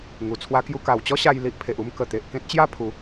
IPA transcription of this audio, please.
ŋ u˨˩ t͡sʰ w a˦ k j u˦ k a˨˩ w t͡ɕ ɔ˦ ɕ a˧ j l i˦ ʔ pʰ e˨ ʔ u˦ m k ə˨˩ t̪ e˨ ʔ k ẽ˦ t̚ t͡ɕ j a˥˧ pʰ u˨˦

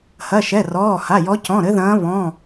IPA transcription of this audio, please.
h ɐ˩˧˩ ʃ ɛ˩˧˩ r ɔː˩˧˩ h a˩˧˩ j ɔ˨˦ c ɔ̃˩˧˩ ɾ ɘ˨˦ ð ɐ̃ː˨˦ β ɔ̃˩˧˩

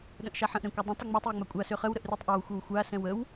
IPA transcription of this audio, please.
ɗ ə̃ ʔ ʃ a ħ ə̃ ʔ ɾ ɛ̃ kʷ ə dˤ ə̃ tˤ ə ŋ͡m ɛ tˤ j ə ŋ͡m a kʷʼ a s ø χ ə w ɾ ə ʔ r y tˤ ʔ a w xʷ ə w xʷ a s ɛ̃ w ə w

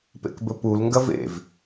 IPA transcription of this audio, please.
p ḛ k b ɵ p u l ŋ ɡ ɐ v ḛ v

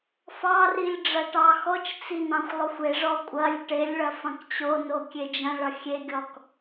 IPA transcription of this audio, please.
f ɑ r i lʲ ɖ͡ʐ ɐ ʈ ɑ x ɔ t͡ʃ t͡s i n ɑ̃ xʷ lˠ ʊ xʷ e ʐ ɔ kʷʼ ɐ lʲ ʈ e lʲ ɭ ɐ f ɐ̃ k t͡ɕ o n o kʲ e d͡ʒ ɐ̃ ɭ ʌ xʲ e ɡʲ ɔ k

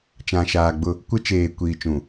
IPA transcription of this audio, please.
t͡ʃ ã˨ ʃ aː˨ ɡ͡b ʊ˦˨ | kʷ ɪ˦ t͡ʃ eː˨ kʷ iː˨ t͡ʃ ũ˨

